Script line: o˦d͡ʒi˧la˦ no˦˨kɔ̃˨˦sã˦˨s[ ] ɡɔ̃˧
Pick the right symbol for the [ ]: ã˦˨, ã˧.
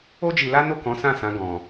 ã˧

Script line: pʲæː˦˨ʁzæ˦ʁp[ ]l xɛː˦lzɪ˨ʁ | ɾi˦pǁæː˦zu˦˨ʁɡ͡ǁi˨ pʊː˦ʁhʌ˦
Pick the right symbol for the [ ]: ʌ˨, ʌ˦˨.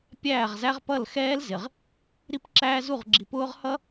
ʌ˦˨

